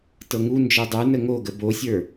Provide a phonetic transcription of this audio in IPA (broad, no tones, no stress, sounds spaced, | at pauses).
t ɤ ŋ u n d͡ʒ ə˞ dˤ ə˞ n ə ŋ o ɡ ə b o sʲ ə˞